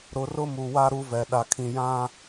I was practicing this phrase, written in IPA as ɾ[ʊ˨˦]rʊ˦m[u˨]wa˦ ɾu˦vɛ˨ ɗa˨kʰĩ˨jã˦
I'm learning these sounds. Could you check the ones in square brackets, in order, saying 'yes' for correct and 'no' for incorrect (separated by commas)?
yes, yes